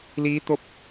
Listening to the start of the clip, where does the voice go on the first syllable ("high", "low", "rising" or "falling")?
rising